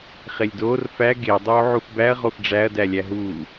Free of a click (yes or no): yes